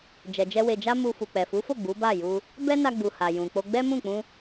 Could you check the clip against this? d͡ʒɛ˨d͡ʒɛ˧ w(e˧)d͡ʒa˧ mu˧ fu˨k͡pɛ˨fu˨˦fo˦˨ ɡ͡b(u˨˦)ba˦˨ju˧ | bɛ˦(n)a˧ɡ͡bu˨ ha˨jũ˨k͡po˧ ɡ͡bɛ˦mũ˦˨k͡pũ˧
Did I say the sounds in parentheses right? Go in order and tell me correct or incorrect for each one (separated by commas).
incorrect, correct, correct